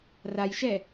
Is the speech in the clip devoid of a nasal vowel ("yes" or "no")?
yes